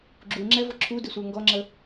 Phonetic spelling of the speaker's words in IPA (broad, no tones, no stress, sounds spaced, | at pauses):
ɡ͡ǁ u ŋ͡ǁ ɛ v ʊ ǁʰ u d ɪ sʷ ə˞ ŋ ɡ ɔ ŋ͡ǁ ə